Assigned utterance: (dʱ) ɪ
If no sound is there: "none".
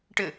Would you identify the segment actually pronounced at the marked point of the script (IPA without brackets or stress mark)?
ʈ